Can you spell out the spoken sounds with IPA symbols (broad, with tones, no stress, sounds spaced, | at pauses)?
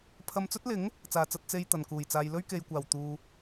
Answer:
pʰ ɐ˧ m t͡s ɵ˥ t̚ l ɪ˨˥ ŋ | t͡s aː˨ t͡s ɐ˧ t̚ t͡s e˧ j t̪ ɐ˨˩ n k uː˨˩ j t͡s aː˨ j l ɵ˥ ɥ k e˨ j kʷ aː˨˩ w t̪ uː˨